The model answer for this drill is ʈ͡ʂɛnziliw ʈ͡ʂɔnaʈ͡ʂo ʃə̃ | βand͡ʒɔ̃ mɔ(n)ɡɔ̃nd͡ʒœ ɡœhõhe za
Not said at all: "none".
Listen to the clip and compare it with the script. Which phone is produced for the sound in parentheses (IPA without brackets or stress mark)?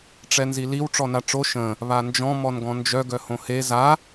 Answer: n